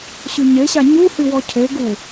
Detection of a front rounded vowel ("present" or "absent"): present